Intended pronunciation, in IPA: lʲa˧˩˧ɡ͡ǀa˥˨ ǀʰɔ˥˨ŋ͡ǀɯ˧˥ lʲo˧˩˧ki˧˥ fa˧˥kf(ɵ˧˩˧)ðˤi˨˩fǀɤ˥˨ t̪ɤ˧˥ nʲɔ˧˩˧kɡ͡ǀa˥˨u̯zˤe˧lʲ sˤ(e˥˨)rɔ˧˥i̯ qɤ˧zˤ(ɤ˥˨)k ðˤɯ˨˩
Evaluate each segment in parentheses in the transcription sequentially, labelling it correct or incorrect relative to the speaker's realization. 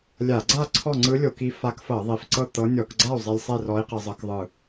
incorrect, correct, incorrect

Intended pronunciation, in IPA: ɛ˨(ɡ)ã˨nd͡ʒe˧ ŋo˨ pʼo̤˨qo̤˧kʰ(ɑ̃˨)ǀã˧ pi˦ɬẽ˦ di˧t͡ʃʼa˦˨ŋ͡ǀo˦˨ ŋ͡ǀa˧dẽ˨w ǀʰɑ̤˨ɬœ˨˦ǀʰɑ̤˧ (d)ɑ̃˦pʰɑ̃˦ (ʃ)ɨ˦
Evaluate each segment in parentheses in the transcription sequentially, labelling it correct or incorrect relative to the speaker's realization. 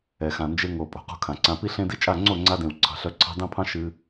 incorrect, incorrect, correct, correct

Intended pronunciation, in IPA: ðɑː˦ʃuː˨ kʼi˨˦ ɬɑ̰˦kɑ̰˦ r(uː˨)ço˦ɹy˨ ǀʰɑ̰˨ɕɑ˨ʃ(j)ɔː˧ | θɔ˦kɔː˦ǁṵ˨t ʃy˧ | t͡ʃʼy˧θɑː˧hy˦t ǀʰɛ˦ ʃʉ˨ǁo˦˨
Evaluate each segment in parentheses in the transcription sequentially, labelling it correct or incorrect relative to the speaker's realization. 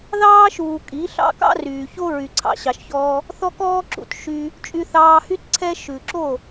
incorrect, incorrect

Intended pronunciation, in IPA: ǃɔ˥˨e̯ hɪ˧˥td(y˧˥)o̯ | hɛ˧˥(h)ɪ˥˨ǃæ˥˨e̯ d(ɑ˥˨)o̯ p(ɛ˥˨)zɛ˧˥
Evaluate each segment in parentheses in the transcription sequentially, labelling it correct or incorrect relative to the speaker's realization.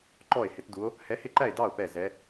incorrect, correct, correct, correct

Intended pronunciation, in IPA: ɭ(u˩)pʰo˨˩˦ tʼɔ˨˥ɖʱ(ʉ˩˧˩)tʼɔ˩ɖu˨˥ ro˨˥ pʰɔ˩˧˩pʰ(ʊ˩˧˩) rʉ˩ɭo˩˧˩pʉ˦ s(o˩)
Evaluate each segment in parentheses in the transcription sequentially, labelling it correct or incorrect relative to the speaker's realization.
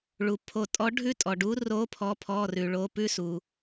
correct, incorrect, incorrect, incorrect

